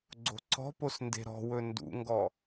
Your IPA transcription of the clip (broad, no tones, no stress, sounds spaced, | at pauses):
ɡ͡ǀ o̤ ǀ ɔ̤ p o s n d e̤ ɾ ɔ̤ w ɵ n d ṵ ŋ ɡ ɔ